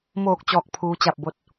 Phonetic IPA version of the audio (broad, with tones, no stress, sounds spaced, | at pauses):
m oː˧˩ k̚ t͡ɕ ɔː˧˩ k̚ pʰ uː˧˥ t͡ɕ a˥˨ p̚ b o˧˥ t̚